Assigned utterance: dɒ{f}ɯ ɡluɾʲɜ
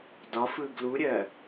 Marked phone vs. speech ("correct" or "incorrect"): correct